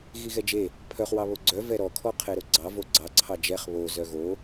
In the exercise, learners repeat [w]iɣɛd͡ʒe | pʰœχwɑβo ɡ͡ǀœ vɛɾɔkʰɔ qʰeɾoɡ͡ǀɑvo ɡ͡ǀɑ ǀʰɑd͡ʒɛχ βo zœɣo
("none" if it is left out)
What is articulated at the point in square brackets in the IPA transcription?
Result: ɣ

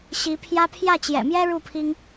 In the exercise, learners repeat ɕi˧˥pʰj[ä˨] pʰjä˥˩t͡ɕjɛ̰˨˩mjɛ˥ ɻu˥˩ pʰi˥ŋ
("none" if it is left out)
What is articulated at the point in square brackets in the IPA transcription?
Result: ä˥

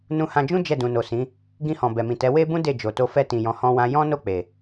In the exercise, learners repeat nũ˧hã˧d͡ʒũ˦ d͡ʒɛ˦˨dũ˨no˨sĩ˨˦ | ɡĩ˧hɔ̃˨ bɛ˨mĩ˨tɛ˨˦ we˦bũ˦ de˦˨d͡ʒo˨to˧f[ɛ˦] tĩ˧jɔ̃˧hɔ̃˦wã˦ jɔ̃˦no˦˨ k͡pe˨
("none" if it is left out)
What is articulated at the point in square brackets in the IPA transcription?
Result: ɛ˦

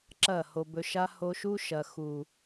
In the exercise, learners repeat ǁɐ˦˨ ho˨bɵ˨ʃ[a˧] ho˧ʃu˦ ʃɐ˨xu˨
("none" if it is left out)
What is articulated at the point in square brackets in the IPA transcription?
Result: a˧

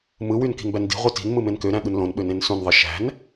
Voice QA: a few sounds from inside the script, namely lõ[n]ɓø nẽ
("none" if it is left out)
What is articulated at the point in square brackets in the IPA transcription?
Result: n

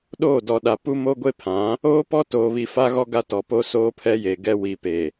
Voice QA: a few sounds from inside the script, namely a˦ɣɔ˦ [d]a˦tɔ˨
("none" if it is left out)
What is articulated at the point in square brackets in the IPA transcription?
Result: ɡ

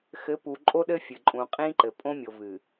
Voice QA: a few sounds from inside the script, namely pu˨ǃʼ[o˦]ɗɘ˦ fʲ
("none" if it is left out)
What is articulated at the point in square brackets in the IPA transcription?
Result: o˦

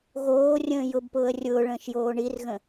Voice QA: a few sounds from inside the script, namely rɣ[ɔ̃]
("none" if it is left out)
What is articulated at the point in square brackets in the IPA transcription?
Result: ə̃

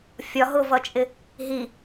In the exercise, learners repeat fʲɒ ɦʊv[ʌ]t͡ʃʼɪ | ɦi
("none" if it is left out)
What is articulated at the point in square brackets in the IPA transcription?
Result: ʌ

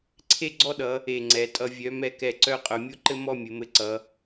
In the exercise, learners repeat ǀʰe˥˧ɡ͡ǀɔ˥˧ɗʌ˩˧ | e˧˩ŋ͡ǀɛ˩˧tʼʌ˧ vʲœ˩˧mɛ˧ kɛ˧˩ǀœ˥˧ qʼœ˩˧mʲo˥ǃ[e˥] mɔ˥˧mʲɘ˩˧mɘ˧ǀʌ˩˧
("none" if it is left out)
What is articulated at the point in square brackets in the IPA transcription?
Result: ɘ˥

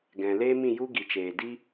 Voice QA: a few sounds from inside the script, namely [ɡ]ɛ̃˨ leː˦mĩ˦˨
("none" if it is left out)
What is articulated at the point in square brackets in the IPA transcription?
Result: ɡ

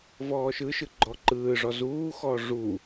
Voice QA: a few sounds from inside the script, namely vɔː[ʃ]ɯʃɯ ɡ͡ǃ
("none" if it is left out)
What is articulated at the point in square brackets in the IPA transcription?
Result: ʃ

